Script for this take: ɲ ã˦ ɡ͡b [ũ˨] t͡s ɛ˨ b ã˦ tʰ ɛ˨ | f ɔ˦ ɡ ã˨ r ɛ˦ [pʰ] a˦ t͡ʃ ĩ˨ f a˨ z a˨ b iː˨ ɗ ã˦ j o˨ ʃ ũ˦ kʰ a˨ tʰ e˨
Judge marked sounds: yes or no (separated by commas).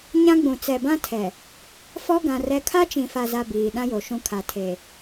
yes, no